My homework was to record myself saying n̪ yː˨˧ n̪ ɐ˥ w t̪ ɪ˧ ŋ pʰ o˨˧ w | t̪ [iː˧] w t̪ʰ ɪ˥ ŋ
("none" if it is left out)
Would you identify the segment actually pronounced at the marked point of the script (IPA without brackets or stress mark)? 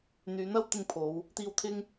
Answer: iː˧